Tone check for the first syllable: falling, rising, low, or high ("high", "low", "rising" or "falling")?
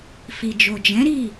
low